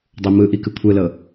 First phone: dˤ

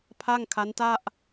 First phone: pʰ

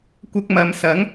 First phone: kʷ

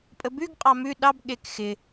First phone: pʼ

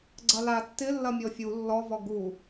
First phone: ɡ͡ǀ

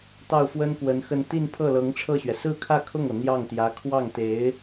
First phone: t̪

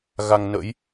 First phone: ɣ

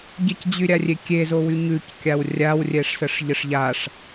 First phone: ɟ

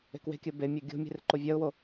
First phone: e̤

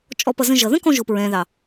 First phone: t͡ʃʼ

